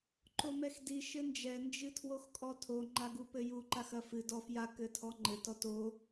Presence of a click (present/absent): present